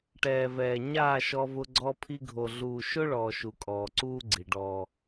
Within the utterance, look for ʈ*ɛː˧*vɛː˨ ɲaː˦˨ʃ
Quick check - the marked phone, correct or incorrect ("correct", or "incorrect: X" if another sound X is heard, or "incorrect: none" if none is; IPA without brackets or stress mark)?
incorrect: ɛː˨